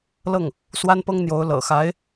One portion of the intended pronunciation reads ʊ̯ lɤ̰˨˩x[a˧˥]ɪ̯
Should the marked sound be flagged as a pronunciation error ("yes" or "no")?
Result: no